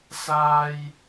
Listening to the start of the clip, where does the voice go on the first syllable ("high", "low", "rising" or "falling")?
high